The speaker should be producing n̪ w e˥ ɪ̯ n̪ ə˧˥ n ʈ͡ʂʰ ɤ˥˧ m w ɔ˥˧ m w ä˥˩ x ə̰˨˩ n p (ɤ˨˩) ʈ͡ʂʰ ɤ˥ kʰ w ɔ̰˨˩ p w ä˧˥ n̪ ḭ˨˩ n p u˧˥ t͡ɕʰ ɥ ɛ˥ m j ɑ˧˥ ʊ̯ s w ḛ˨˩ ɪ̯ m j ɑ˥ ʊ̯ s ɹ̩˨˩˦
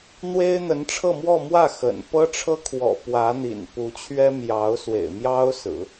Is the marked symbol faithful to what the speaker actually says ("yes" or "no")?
no